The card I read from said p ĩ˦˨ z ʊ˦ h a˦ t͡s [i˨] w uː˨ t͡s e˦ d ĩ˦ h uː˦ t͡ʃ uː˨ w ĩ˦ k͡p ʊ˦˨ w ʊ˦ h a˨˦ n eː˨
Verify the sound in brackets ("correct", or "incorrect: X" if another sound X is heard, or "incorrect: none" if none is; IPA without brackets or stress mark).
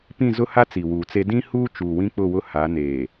correct